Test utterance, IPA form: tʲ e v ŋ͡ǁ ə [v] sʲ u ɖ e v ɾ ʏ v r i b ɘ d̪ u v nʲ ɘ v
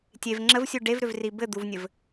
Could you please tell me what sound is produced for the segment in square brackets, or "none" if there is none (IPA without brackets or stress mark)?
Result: v